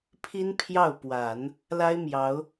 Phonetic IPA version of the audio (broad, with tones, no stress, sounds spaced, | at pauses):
pʰ i˥ n pʰ j ɑ˥˩ ʊ̯ p w a˨˩˦ n | l a˥ ɪ̯ m j ɑ˧˥ ʊ̯